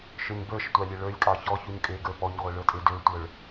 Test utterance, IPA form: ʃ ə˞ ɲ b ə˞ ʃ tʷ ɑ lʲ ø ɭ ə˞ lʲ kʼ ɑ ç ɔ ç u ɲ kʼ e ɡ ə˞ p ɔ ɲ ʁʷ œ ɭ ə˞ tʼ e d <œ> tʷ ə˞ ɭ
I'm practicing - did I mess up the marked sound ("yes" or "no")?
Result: yes